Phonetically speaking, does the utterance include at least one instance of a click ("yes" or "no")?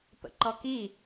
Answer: yes